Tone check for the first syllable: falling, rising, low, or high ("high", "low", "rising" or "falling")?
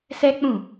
high